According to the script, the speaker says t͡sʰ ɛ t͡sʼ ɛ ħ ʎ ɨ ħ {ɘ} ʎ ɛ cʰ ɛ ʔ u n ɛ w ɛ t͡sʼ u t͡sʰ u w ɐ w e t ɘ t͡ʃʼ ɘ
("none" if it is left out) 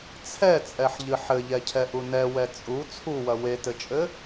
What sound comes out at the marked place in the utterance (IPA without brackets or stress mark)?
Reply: ɘ